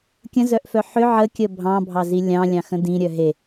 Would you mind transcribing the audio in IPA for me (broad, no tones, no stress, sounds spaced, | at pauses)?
kʲ ə̃ z œ ʔ f œ ħ ʏ ʕ ə kʲ ə bʱ ɑ̃ bʱ ɑ z i lʲ ɑ̃ lʲ ɑ̃ x ə̃ d ĩ ɾʲ œ ɦ e